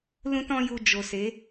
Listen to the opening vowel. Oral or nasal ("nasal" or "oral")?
nasal